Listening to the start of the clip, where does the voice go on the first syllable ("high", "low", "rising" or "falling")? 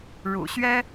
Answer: low